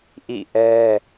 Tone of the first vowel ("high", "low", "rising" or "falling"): falling